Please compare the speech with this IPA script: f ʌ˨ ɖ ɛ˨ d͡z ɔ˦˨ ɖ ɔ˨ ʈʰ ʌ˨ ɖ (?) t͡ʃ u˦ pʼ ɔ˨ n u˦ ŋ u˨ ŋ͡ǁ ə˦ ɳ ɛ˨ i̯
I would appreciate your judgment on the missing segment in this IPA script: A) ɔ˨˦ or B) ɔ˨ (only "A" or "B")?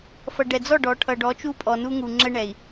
A